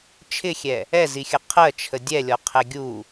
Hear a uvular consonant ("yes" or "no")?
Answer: yes